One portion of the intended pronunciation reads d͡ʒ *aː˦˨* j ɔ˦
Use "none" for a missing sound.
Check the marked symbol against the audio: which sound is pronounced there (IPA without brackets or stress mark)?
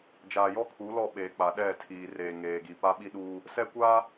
aː˨